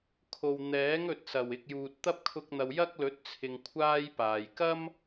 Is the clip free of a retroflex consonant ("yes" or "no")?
yes